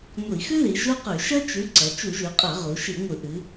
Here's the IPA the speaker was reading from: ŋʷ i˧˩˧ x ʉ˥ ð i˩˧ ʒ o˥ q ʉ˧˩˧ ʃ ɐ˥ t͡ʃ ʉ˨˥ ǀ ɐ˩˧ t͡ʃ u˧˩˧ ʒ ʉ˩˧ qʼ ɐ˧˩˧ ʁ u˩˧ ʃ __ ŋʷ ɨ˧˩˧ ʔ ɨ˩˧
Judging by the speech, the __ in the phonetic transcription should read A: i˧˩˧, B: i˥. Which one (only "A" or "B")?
A